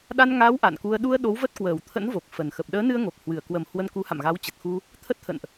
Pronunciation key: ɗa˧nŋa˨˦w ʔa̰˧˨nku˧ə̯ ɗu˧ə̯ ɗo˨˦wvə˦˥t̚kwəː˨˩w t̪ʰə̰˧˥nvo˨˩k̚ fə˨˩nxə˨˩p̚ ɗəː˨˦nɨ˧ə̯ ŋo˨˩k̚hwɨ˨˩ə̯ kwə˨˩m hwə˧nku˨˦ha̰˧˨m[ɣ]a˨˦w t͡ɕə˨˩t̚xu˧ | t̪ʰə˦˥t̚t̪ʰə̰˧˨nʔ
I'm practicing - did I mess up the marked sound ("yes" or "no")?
no